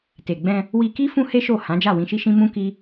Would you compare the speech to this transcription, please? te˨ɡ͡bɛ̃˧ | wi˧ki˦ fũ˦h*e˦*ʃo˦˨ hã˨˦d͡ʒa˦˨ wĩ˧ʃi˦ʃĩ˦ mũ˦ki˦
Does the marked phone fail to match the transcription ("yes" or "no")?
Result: no